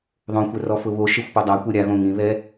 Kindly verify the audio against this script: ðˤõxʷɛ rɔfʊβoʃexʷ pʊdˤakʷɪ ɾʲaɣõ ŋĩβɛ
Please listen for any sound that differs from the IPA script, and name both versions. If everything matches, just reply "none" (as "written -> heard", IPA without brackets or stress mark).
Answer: none